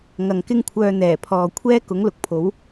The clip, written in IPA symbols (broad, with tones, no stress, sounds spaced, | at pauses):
ŋ ɐ˨ ŋ k ɪ˥ ŋ kʷʰ œː˧ n̪ ɛː˨˩ pʰ ɔː˨ kʷʰ ɛː˥ k ʊ˨˥ ŋ l ʊ˨˥ k̚ pʰ o˨˥ w